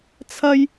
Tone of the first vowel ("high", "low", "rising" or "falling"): high